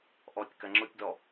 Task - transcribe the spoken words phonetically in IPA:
ʔ ɔ tʲ k ɐ ŋ͡ǁ ʊ tʲ d ɔ

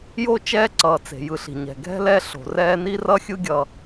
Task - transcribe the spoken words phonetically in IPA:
j o˦ t͡ʃ ɛː˥ ǀ ʌː˩ t͡s e̤˩ j ɯ˨ ɬ i̤˩ ɲ ɛ̤˩ ɡʱ ɛ̤˥ l ɛ˦ ɬ o̤˩ r ɛː˦ n i˥ r ʌ˥ xʲ ɯ˥ ɡʲ ʌː˨

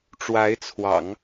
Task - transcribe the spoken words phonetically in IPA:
ʈ͡ʂ w a˧˥ ɪ̯ t͡sʰ w ɑ̰˨˩˦ ŋ

